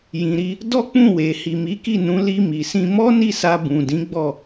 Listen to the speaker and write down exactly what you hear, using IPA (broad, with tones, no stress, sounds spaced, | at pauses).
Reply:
j ĩ˨ ɾ i˧ | d ɔ˦ k͡p ũ˦˨ w e˨ h i˨ m i˨˦ k i˦˨ n ũ˨˦ l i˧ m i˨ s ĩ˧ m ɔ˦ n i˦˨ s a˧ b ũ˨ d ĩ˨˦ ɡ͡b ɔ˦˨